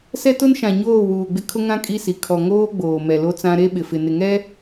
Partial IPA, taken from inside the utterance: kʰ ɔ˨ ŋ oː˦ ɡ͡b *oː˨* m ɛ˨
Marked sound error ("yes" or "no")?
no